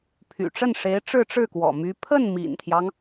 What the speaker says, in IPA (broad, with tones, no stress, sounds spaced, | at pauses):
pʰ y̰˨˩ ʈ͡ʂ ə˥˩ n ʂ e˧˥ ɪ̯ ʈ͡ʂ ɻ̩˥˧ ʈ͡ʂ ɻ̩˥˩ k w ɔ̰˨˩ m y˧˥ pʰ ə˥˩ n m ḭ˨˩ n t̪ʰ j ɑ˦ ŋ